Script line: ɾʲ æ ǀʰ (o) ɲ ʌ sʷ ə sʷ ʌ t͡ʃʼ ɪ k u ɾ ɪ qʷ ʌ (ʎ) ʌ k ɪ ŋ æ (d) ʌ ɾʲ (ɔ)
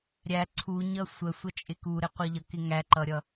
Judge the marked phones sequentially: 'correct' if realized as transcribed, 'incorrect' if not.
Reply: incorrect: u, correct, incorrect: ǃ, incorrect: ʌ

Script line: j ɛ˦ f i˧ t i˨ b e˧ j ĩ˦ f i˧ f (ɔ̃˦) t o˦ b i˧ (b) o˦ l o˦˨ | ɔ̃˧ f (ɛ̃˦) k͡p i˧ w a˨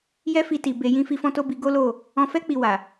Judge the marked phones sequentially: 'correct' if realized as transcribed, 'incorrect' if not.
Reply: correct, incorrect: ɡ, incorrect: ɛ˦

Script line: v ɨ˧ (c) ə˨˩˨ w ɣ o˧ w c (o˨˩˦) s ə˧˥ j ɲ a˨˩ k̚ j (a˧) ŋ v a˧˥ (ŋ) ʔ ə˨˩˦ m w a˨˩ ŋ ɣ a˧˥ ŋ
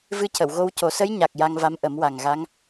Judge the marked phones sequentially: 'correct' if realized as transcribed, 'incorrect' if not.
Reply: correct, correct, correct, incorrect: m

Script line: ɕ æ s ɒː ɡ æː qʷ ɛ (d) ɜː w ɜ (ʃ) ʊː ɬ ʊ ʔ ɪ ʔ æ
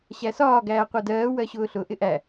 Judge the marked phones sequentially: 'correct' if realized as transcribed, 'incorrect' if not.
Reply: correct, incorrect: ɕ

